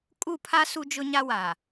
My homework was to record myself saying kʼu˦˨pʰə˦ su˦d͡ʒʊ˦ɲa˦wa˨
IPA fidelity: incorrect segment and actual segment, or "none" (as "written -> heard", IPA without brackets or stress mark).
ə˦ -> a˦